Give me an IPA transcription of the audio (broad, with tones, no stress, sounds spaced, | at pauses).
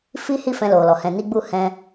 f i˦ h i˦˨ f ɛ̃˧ l o˨ l ɔ˨ h ɛ̃˨ n i˧ ɡ͡b u˧ h ɛ̃˧